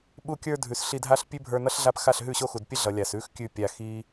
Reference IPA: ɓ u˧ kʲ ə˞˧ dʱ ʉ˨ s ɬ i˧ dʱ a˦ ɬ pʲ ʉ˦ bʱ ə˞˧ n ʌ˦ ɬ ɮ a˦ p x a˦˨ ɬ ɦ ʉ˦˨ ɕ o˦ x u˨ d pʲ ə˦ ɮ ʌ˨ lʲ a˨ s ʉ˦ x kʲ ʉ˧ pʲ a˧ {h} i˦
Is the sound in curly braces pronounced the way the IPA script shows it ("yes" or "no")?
no